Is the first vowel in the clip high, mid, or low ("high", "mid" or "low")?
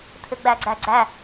high